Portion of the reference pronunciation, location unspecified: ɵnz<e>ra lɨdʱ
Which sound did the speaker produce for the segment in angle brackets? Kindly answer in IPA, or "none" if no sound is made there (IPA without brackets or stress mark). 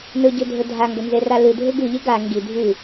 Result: e